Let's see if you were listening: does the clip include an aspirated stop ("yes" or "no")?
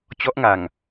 no